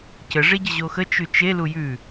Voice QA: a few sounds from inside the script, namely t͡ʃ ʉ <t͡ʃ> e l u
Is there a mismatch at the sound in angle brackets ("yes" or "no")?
no